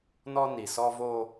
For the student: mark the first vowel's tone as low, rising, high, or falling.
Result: high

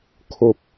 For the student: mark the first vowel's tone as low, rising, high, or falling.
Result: low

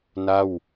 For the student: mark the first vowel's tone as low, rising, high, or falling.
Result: falling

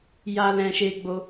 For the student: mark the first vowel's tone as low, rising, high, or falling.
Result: high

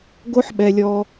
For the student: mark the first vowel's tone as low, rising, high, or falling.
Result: high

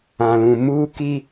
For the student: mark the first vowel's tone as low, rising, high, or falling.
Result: low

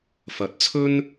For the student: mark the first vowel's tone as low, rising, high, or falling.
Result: rising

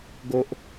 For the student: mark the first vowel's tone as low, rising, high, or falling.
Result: high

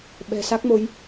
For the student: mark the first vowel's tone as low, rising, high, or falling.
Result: low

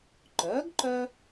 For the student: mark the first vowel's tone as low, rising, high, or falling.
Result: rising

